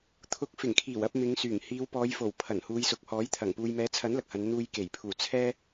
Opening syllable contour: rising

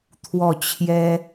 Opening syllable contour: falling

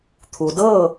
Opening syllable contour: low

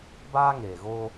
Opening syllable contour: high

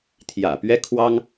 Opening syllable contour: low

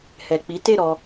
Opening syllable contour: low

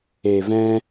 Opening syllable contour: low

